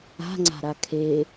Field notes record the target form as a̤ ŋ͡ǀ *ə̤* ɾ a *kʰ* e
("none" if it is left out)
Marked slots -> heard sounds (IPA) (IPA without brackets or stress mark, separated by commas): a̤, kʰ